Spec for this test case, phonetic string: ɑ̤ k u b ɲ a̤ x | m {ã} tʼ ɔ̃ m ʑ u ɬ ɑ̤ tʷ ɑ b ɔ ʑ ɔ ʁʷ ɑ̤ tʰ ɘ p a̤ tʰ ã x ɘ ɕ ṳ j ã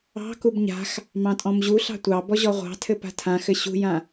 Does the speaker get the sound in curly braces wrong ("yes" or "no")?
yes